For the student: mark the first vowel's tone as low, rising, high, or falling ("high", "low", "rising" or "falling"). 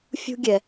high